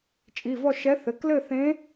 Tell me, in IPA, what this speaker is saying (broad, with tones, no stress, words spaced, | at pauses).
t͡ʃʼi˩˧˩vɔ˥˧ ʃɛ˧˥θɘ˩˧˩k lɘ˥˧θẽ˧˥